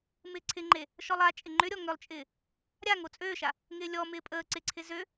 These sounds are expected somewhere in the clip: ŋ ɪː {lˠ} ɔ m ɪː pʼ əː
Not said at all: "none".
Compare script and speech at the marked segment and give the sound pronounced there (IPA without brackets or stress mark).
lʲ